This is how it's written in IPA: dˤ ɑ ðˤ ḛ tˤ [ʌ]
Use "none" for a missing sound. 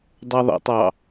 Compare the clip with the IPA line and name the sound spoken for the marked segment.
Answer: ɑ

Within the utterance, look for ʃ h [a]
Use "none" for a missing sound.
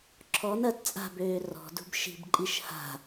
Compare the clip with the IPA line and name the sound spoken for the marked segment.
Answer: a̤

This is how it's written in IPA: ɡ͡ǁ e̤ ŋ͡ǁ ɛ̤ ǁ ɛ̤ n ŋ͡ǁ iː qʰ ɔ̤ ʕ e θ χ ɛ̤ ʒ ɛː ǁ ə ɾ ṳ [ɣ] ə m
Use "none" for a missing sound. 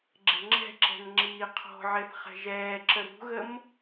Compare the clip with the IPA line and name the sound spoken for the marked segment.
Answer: ɣ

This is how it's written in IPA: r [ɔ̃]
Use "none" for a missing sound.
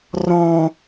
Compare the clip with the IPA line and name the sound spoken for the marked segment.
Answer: ɔ̃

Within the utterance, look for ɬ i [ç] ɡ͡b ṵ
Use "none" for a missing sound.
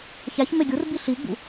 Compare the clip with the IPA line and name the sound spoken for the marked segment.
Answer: none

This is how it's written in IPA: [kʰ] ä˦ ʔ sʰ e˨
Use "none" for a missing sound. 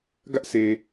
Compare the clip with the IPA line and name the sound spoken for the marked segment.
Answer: ɡ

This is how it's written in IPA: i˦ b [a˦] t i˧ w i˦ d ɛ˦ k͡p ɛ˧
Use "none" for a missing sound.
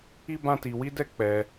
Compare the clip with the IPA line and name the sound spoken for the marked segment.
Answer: ã˦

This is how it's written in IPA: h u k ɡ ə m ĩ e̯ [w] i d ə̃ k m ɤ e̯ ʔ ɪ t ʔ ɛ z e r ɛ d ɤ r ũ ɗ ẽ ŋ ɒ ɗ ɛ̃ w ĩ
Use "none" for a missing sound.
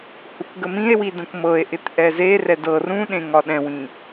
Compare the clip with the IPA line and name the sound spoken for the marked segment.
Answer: w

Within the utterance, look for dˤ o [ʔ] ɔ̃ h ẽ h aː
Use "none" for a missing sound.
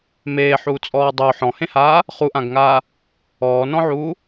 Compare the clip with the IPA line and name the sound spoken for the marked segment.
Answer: ħ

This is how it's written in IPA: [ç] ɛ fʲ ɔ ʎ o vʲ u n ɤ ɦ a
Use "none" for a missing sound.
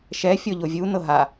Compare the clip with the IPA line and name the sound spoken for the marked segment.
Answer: ʃ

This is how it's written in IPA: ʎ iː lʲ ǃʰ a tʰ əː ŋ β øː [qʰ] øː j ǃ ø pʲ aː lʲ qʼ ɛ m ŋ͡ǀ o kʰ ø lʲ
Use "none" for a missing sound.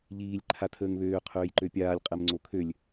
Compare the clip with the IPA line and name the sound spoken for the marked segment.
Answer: qʰ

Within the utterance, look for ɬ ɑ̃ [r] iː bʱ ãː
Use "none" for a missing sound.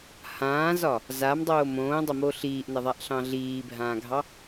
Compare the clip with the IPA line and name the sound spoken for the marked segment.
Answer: ɮ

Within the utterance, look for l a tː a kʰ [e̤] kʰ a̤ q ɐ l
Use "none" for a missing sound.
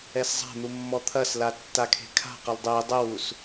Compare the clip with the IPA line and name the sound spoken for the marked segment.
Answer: e̤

